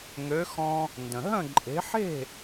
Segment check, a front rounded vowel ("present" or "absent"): present